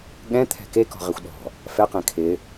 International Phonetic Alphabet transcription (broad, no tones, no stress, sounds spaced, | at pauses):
ɠ ɛ̃ t̪ʰ ɛ̤ k e k ɔ̤ ʁ e xʷ ɗ ɔ̤ | f ɛ q ẽ kʰ ɪ